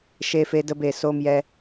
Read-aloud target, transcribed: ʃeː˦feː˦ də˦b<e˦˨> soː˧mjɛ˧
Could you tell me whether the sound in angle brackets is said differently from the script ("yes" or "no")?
no